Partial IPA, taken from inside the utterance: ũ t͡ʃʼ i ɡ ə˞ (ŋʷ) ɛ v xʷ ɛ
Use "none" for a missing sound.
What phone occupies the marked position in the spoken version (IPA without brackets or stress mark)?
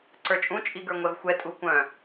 ŋʷ